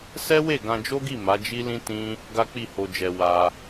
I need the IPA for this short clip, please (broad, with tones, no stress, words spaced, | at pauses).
sɛ˦we˦˨ ɡã˧d͡ʒo˦ɡi˦˨ ma˨˦d͡ʒi˦lĩ˦ tĩ˦ | ɡa˦k͡pi˦˨ho˧d͡ʒɛ˧ wa˧